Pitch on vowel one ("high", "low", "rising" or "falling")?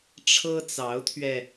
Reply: high